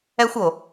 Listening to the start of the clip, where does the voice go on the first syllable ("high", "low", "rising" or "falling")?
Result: high